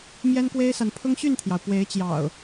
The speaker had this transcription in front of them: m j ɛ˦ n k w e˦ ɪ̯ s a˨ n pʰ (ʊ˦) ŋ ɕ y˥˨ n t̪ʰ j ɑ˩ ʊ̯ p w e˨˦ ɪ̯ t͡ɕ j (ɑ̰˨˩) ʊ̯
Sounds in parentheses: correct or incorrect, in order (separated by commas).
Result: correct, correct